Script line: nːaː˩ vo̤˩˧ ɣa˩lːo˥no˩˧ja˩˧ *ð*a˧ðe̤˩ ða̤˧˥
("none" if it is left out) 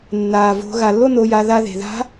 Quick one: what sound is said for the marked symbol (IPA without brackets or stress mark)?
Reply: ð